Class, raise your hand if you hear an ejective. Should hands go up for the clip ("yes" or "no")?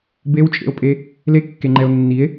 yes